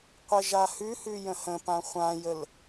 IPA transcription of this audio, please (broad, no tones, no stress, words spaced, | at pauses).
qʷɛʒahʉhʉ jə̃hə̃pã χʷãjəl